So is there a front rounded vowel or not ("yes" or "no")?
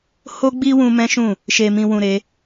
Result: no